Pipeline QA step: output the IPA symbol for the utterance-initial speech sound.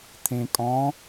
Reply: t̪ʰ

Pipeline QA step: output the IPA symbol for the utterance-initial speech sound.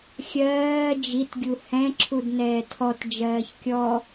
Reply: xʲ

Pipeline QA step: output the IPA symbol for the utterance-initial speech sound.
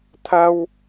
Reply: t̪ʰ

